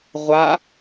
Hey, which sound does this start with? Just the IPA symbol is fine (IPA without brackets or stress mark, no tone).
ʁʷ